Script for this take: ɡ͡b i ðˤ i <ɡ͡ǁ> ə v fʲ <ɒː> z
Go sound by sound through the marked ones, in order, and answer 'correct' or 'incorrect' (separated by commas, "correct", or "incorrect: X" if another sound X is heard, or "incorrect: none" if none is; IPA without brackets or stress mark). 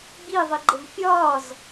incorrect: ɡ͡ǃ, correct